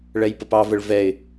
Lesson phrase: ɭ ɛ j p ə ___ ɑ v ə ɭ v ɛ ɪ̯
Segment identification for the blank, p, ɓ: p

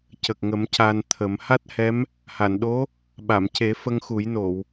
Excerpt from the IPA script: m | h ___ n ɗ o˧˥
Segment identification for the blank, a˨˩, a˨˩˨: a˨˩˨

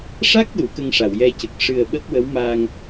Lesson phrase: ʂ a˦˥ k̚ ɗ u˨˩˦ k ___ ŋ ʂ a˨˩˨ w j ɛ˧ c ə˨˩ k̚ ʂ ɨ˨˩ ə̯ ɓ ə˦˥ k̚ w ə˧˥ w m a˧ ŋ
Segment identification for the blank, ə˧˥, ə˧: ə˧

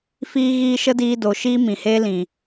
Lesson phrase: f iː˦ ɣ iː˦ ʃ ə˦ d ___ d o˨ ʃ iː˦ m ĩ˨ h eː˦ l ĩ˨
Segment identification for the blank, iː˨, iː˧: iː˧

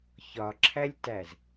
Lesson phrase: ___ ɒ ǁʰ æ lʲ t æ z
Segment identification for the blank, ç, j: ç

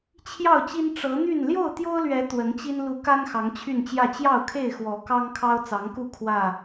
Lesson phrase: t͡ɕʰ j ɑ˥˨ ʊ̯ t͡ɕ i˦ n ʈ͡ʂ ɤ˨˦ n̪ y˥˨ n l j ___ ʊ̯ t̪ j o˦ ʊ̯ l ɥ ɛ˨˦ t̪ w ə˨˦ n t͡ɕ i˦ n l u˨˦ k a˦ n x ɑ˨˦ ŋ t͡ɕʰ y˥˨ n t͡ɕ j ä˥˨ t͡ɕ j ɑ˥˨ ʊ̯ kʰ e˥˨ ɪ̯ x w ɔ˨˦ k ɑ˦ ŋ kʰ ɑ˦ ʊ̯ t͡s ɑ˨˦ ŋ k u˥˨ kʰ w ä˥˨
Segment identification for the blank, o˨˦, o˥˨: o˥˨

